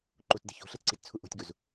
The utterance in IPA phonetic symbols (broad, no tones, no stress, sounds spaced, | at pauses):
ǃ u t d e̤ ç o̤ ɬ e t ǀ i t t͡sʰ u ʔ o̤ tʲ ɡ u z